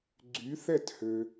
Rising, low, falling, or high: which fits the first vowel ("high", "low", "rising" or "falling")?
rising